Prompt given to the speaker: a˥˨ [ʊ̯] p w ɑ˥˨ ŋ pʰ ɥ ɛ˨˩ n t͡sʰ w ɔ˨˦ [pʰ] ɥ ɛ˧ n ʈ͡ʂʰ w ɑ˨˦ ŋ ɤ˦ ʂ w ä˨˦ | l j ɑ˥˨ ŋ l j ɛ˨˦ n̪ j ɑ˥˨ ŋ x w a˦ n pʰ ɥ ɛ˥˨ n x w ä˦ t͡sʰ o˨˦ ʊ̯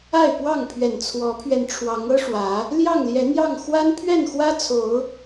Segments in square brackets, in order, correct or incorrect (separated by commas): incorrect, correct